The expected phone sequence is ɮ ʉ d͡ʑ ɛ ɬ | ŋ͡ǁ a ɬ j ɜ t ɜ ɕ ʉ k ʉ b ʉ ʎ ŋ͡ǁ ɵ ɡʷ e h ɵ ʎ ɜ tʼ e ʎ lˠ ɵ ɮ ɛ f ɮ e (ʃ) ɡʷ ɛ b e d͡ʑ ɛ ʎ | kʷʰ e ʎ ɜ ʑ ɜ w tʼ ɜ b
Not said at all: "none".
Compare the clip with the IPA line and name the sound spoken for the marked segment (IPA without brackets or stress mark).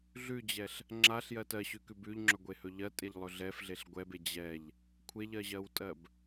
ɬ